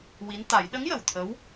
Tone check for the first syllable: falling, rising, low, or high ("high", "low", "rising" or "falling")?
rising